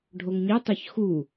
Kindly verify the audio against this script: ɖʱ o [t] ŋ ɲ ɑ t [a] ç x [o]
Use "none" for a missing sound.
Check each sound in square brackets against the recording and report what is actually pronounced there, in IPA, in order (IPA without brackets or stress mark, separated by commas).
none, ɑ, u